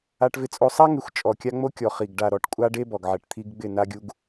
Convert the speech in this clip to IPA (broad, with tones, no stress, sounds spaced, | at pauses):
a˦ ʈ v ɪ˦ t͡sʼ o˦ sˤ a˦ ŋ ɪ˨˦ xʷ t͡ʃʼ ɔ˨ kʲ a˦ ŋ͡m o˦ kʲ ɔ˨ χ i˨ ɡ ɖ a˨ ɾ ɔ˨˦ ʈ kʷʼ a˦ ɖ e˦ b ɔ˨ ɡ ʕ ɛ˨ ʈ t̪ʰ i˦ ɡ ɡ͡b ɪ˦˨ n a˦ ɡʲ u˦ ɡ